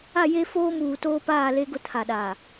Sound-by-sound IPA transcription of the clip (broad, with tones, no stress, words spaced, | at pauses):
a˦˨je˦foː˦muː˨ toː˦paː˦˨le˦ɡʊ˦ tʰa˨ɗaː˨